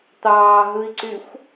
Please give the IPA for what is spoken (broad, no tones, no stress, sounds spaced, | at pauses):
t̪ ɑː ɦ ɯ i̯ ǀ y xʷ